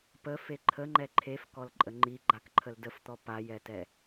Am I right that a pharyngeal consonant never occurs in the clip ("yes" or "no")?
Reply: yes